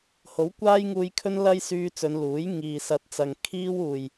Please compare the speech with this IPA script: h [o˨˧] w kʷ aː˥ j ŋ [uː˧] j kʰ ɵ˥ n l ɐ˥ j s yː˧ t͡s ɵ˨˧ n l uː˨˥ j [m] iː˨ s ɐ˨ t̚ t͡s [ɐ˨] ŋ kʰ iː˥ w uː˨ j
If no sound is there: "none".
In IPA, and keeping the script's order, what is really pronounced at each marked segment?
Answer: o˨˥, uː˧, ŋ, ɐ˨

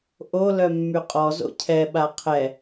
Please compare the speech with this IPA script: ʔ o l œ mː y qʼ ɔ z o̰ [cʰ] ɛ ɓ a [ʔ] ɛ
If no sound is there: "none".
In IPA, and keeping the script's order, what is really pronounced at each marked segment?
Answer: cʰ, qʰ

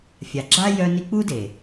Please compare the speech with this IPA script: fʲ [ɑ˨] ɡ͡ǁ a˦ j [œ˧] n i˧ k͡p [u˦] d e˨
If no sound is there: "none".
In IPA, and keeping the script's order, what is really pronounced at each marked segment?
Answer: a˨, œ˧, u˦

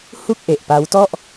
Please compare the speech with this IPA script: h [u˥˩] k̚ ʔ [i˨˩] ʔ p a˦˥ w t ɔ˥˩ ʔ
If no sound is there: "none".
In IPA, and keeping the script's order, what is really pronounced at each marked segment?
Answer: u˥˩, e˨˩

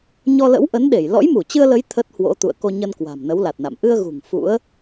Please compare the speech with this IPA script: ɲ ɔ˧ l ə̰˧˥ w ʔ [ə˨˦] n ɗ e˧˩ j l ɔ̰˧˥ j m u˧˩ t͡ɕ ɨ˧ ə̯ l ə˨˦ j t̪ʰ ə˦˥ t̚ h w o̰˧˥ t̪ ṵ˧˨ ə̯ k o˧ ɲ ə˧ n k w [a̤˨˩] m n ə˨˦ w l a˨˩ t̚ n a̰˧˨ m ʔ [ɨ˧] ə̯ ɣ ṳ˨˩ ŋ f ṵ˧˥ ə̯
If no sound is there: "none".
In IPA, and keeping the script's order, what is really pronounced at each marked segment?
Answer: ə˨˦, a̤˨˩, ɨ˧

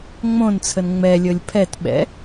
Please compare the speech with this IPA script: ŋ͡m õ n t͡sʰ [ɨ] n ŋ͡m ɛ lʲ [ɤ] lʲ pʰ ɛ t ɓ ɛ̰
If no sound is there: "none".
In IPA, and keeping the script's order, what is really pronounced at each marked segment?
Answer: ə, ɤ

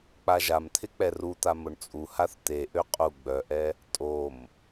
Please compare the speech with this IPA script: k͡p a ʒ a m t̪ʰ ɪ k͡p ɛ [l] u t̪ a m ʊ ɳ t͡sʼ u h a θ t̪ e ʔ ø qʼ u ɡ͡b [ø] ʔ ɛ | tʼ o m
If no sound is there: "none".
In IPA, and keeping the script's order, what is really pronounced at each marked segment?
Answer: r, œ

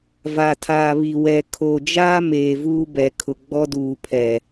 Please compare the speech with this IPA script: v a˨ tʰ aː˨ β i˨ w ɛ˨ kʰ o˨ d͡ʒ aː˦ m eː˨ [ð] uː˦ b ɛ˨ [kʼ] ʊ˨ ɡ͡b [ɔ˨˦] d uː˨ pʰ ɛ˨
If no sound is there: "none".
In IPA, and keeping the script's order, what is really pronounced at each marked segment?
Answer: v, kʰ, ɔ˦

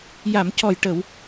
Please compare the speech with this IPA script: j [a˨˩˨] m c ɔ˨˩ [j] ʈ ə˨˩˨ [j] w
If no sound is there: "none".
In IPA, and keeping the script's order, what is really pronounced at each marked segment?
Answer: a˨˩˨, j, none

